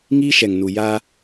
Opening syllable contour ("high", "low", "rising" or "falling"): high